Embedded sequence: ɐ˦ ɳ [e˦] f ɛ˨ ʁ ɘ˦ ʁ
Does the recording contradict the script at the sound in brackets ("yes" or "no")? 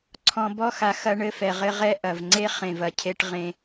yes